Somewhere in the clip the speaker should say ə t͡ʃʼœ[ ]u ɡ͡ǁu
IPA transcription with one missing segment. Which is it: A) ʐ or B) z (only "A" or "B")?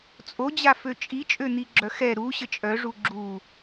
A